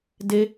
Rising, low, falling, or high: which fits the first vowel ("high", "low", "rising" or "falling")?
high